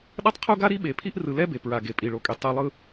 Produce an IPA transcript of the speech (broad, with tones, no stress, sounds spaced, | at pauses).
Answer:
ɗ ʌ˦ tˤ qʰ u˦ ɡ a˦ ɾ i˦ ɓ e˨ pʰ i˦ ʔ r ɯ˨ l ɛ˦ b e˨ p ɹ a˨ ɡ e˨ pʼ i˨ ɭ o˨ kʼ e˨ tˤ e˨ lˠ ɯ˨